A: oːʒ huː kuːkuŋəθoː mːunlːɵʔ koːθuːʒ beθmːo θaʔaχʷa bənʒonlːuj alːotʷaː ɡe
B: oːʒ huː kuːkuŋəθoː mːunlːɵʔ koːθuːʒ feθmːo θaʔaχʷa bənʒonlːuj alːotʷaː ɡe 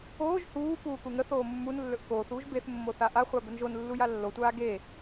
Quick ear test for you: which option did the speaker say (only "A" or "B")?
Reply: A